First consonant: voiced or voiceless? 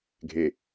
voiced